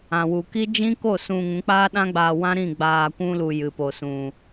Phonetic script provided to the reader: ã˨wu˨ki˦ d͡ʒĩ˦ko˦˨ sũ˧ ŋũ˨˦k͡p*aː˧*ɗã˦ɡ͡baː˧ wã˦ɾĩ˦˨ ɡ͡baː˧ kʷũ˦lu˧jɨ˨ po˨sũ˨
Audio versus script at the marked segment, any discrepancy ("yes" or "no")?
yes